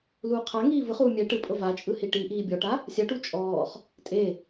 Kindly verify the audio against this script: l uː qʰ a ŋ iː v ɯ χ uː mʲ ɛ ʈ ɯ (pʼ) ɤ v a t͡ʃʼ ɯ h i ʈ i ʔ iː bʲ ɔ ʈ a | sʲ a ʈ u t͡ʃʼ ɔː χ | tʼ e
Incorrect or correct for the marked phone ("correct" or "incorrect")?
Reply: correct